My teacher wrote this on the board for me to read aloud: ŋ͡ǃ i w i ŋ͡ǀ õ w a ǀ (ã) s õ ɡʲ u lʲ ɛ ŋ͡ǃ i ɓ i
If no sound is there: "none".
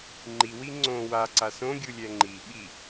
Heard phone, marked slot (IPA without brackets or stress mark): a